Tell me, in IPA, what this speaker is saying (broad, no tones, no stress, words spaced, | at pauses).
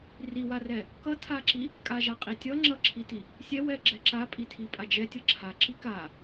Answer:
riwarɛ | kʌtʰaǁi | kʼaʒaqʼitʲʌ ŋ͡ǁʌǁʰiti | sʲɛwɛɡ͡ǁɛ ǁapʼitʰi pʼad͡ʒɛ tʲʌǁʰa ǁika